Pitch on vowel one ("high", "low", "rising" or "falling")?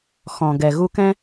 low